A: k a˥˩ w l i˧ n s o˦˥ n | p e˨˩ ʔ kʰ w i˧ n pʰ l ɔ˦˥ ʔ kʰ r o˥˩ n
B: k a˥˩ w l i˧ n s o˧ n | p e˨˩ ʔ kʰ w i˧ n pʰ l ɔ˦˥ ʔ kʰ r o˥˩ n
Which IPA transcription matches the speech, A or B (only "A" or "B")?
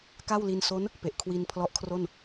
A